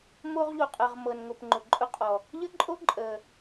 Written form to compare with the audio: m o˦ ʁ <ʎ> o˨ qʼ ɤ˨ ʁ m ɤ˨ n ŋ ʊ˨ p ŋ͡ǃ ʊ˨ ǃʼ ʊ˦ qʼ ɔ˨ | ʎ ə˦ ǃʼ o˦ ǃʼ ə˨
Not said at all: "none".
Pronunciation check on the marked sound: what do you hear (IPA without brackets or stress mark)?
ʎ